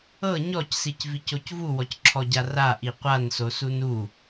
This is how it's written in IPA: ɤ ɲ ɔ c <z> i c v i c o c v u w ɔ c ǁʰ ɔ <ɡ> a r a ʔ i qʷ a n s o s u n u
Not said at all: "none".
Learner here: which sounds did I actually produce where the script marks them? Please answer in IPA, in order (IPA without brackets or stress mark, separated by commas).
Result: s, ɟ